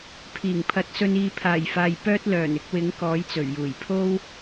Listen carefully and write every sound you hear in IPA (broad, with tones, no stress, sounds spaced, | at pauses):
pʰ iː˨˩ ŋ pʰ ɐ˨˥ t̚ s ɵ˧ n iː˨˧ pʰ aː˨˩ j f aː˨ j p œː˥ t̚ l œː˨˩ n ɪ˧ k̚ w ɪ˨˥ ŋ k ɔː˨˥ j t͡s ɵ˨˩ ɥ j uː˨˩ j pʰ o˥ w